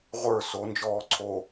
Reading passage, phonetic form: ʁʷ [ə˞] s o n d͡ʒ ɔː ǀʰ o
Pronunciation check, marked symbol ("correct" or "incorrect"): correct